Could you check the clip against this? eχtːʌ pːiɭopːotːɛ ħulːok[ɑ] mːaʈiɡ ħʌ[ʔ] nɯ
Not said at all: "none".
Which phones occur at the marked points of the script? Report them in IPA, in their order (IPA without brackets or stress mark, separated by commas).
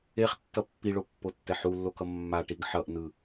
ʌ, ʔ